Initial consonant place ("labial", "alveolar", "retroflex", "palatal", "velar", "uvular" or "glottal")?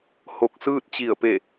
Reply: glottal